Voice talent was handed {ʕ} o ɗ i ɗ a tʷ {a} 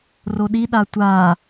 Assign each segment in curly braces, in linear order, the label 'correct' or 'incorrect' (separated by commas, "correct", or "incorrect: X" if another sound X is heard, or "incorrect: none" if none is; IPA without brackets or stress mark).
incorrect: r, correct